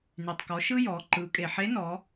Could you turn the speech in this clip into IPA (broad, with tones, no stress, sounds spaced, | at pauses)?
n y˩ tˤ k ɔ˩˧ ʃ ɯ˥ j ɔ˩˧ ǃ ɯ˩˧ kʼ e˩ ħ e˧˥ n ɔ˩˧